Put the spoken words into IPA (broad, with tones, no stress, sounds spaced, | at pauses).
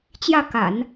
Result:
t͡ɕ j ä˥˩ k a̰˨˩˦ n